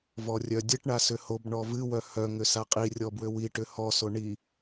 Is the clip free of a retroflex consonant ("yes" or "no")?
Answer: no